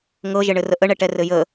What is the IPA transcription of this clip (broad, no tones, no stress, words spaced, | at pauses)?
ŋɤʒɘɳɘ rəʔəɳɛʈɛ rɘjə